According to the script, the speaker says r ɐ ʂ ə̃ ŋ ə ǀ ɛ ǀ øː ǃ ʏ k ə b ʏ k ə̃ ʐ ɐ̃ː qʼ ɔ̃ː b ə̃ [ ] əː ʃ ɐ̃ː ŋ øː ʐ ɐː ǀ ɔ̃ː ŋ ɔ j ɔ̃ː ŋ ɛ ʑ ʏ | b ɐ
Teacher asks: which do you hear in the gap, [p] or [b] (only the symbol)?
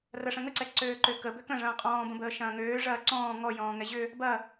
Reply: b